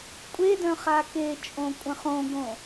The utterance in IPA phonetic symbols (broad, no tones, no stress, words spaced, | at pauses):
kʷʼedœ̃ χaket͡ʃʼõ kʷʼə̃χõɡõ